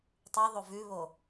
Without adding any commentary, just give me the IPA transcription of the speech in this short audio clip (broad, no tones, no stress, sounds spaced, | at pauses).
tˤ ʉ ðˤ o v ʉ β o